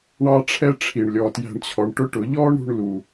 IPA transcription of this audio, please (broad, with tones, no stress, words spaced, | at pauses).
ɳɑ˦ʈ͡ʂʰɛ˦ʈ͡ʂʰi˨ɳ lʲɔ˨tjæ̤˧ɳt͡ɕʰɔ˨ɳ ʈʊ˦ʈʊ˨˦ ʎɔ˦ɳɾṳ˧ɳ lu˨